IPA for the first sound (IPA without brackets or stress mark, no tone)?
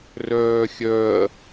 r